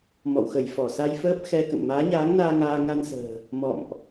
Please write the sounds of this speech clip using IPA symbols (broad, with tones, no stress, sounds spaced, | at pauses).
m ɔ̰˧˨ w x ə˧˩ j f ɔ˧˩ s a˧ j f əː˦˥ p̚ x ɛ˧ k ə̰˧˨ n m aː˨˦ ɲ aː˨˦ ŋ n aː˧ ŋ aː˧ ŋ a˧ n s ə̤ː˨˩ | m ɔ̰˧˨ m ʔ